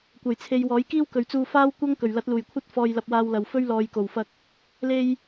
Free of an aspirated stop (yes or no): no